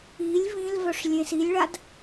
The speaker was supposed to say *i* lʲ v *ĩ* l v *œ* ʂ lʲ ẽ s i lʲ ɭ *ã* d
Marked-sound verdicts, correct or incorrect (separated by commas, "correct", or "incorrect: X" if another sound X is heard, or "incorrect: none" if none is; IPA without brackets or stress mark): correct, correct, correct, incorrect: a